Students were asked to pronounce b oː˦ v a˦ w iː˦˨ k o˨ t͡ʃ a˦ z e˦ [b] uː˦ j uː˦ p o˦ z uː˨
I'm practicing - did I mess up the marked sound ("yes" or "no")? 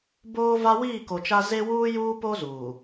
yes